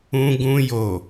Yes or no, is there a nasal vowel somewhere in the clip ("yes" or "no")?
yes